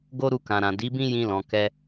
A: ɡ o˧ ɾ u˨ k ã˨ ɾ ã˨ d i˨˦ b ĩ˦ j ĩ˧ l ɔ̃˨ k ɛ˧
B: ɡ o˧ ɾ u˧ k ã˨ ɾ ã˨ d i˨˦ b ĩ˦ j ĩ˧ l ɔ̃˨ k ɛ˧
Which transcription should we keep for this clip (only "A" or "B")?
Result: B